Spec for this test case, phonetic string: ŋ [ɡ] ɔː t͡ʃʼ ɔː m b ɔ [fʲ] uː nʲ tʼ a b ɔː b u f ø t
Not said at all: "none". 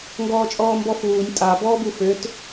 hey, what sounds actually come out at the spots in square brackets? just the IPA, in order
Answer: ɡ, f

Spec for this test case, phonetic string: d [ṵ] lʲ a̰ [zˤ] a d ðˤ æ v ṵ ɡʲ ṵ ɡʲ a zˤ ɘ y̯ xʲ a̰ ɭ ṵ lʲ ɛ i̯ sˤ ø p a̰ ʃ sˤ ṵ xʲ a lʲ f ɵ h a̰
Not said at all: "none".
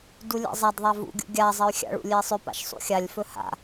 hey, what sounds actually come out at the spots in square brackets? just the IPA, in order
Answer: u, zˤ

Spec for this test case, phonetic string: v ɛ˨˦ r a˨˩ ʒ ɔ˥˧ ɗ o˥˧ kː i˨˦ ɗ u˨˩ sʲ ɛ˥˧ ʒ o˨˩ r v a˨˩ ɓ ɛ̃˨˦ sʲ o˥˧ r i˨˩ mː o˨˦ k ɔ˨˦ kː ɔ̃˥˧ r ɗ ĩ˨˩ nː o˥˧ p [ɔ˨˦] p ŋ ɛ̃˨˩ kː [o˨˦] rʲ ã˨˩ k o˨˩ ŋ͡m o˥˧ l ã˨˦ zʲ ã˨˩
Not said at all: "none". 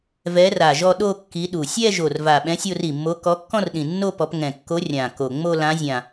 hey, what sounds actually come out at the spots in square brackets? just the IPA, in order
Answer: ɔ˨˦, o˨˦

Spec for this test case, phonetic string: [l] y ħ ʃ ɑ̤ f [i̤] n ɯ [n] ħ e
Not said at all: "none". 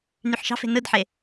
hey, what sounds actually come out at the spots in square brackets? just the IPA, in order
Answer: n, e̤, d

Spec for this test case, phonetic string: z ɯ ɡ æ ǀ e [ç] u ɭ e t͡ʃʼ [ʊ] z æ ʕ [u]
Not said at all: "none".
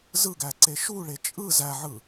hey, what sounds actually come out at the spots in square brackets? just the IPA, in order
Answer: ʃ, ɯ, ɯ

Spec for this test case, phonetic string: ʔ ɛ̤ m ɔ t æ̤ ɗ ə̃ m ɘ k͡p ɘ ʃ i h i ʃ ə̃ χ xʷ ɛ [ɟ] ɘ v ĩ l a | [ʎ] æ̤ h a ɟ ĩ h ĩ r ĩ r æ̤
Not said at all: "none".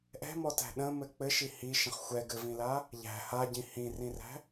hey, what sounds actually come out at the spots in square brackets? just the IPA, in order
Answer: ɡ, ʎ

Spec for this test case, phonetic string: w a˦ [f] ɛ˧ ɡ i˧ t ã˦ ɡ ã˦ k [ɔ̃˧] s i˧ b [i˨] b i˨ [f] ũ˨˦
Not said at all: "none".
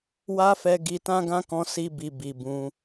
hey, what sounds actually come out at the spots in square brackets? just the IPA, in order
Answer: f, ɔ̃˧, i˨, b

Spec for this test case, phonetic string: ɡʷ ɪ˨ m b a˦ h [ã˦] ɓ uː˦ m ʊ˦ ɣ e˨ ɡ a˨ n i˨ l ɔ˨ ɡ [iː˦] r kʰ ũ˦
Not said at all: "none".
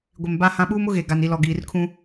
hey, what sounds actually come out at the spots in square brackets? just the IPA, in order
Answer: ã˦, iː˨

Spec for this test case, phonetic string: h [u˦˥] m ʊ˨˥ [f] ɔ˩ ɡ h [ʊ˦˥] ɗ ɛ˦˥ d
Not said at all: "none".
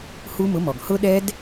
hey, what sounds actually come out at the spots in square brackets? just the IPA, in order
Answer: u˦˥, m, ʊ˦˥

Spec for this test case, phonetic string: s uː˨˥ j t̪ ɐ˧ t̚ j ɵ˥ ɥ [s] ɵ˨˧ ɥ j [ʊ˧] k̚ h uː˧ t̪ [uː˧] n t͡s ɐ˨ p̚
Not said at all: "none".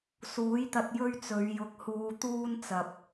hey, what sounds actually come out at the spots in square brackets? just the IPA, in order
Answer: t͡s, ʊ˨˥, uː˥

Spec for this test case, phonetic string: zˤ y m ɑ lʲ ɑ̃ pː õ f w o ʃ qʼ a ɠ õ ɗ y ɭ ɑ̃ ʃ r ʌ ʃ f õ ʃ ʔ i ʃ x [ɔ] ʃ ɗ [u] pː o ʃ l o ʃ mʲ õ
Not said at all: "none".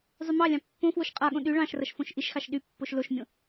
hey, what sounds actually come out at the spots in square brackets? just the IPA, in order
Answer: ɑ, y

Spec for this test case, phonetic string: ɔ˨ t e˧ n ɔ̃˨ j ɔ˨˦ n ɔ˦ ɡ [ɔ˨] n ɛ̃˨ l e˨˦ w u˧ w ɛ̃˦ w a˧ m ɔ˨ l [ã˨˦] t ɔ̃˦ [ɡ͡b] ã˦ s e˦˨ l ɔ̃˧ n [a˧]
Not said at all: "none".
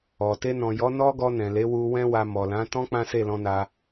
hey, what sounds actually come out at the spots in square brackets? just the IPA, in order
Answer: ɔ˧, ã˨˦, k͡p, a˧

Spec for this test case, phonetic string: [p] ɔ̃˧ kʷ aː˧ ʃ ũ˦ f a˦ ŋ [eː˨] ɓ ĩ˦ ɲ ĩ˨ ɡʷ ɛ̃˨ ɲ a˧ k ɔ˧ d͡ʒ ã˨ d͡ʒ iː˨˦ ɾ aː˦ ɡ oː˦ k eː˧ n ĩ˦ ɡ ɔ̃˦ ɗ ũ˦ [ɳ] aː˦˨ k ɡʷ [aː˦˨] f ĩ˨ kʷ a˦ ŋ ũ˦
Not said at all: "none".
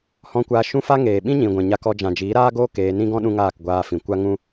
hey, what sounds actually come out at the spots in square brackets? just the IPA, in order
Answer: h, eː˨, ŋ, aː˧

